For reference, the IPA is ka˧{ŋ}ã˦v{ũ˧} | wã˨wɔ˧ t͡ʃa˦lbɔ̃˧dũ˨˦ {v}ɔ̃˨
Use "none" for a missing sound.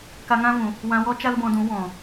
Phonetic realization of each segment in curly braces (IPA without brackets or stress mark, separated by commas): ŋ, ũ˨, w